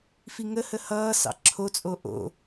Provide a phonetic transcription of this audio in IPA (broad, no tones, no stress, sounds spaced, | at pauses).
f i ŋ ə h ə h ʌː s ɑ̰ ǁʰ o t͡sʼ o ʔ o̰